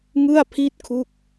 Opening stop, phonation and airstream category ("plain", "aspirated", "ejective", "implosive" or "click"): aspirated